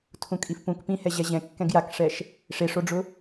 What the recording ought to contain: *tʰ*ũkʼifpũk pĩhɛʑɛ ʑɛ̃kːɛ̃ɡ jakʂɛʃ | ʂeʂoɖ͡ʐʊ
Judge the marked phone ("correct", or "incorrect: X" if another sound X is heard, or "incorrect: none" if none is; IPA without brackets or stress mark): correct